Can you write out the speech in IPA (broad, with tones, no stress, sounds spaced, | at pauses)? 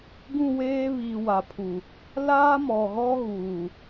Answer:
ɡ ũ˦˨ w eː˦ β i˨ w a˨ pʰ u˨ | l aː˦ m ɔ˨ ɣ ɔ˦ ɣ uː˨